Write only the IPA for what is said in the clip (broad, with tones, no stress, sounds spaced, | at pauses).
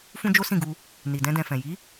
f ũ˦ d͡ʒ o˦ s ĩ˦˨ ɡ u˧ | n i˨ d ɛ̃˧ d ɛ̃˨ f ɛ̃˨ j i˨˦